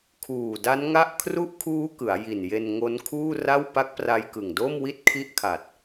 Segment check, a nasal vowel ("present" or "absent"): absent